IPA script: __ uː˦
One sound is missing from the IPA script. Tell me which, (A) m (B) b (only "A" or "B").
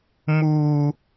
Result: A